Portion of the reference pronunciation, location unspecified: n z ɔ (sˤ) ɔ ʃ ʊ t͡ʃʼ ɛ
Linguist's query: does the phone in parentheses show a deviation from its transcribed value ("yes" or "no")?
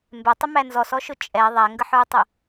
yes